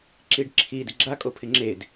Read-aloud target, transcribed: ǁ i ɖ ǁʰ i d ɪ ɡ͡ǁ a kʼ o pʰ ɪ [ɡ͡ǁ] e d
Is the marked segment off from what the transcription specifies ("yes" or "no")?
yes